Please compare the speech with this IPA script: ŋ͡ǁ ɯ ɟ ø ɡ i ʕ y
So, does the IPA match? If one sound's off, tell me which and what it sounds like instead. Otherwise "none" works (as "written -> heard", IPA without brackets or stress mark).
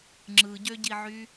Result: ɡ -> ɟ